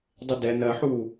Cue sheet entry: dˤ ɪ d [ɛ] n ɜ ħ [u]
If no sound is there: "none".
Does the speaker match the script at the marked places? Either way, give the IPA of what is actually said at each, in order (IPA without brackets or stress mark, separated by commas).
ɛ, u